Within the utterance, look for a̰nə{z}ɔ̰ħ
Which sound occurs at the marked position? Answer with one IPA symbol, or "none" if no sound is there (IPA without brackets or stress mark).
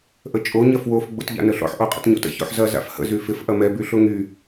ɬ